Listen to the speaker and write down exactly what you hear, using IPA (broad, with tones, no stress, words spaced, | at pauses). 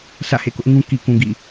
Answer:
sä̰˦˨hḛ˦˨kʊ˦ʔŋũ˦ ki˨kũ˨ ɡḭ˦˨